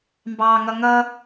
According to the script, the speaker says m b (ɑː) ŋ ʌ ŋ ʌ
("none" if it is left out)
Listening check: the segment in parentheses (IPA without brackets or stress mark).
ɑː